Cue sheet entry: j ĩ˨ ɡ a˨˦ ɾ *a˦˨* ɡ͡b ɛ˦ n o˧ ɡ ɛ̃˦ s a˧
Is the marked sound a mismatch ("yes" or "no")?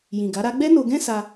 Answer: yes